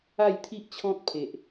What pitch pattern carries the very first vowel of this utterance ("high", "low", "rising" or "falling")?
falling